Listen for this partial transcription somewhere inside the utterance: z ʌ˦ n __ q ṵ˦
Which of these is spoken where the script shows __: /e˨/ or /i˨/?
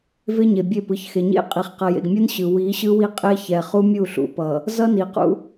i˨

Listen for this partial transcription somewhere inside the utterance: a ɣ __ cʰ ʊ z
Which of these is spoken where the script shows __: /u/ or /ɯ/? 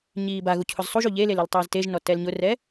u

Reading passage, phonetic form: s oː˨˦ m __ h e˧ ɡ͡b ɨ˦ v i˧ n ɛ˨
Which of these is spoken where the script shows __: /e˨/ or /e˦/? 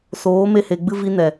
e˦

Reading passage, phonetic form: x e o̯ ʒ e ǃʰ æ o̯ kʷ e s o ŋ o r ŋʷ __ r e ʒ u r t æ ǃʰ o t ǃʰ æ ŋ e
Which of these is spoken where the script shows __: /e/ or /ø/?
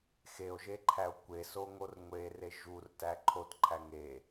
e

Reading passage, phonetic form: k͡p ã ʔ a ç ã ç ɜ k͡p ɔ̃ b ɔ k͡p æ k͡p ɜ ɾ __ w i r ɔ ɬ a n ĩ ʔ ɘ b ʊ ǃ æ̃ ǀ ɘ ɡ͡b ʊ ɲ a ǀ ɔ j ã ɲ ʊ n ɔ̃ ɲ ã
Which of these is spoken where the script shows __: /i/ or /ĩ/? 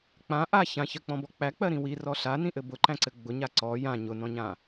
ĩ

